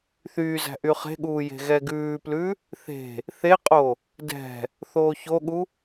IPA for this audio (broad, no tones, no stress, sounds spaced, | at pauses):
θ yː z æ̤ ʔ y χ e̤ ɠ uː j e̤ ɣ ɛ ɡ ʉː p l ʉ | θ e̤ | θ e qʼ o | d ɛ̤ | θ oː ç o ɠ u